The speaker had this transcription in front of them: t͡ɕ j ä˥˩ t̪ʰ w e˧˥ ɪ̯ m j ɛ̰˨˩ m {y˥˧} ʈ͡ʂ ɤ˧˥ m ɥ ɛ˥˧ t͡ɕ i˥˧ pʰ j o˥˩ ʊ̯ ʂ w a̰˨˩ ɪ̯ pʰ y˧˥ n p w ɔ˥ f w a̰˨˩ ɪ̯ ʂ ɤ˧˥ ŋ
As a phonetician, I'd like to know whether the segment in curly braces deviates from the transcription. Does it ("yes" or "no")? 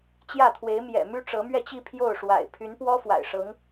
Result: yes